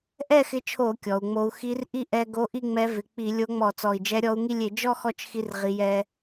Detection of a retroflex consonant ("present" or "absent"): absent